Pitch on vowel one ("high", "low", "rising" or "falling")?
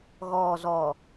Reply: low